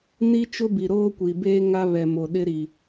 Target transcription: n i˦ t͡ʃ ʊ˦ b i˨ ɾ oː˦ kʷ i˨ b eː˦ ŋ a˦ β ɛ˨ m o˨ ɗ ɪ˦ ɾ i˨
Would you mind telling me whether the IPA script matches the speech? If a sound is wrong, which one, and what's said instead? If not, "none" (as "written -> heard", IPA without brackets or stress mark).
none